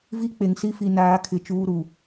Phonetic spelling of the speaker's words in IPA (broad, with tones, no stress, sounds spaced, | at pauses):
v i˦ k͡p e˨ ŋ s i˦ f i˨ n aː˨˦ kʰ ɪ˨ t͡ʃ uː˦ ɾ u˨